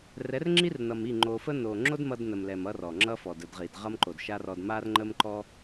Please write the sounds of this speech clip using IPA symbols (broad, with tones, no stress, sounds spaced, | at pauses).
r ɛ˨˦ r ŋ͡ǁ i˦ r n ʌ˨ m i˦˨ ŋ͡ǃ o˨ f ə˦ n o˨ ŋ͡ǁ o˦ d m ʌ˧ d n ə˨ m l ɛ˨ m ʌ˦ r ɔ˨ ŋ͡ǁ ʌ˦ f ɔ˨ d ə˦˨ d ʁ i˨ d ʁ ʌ˦ m ǃ o˨ d ʃ a˦ r ɔ˧ d m a˦ r ŋ͡ǃ ə˦ m ǃ ɔ˦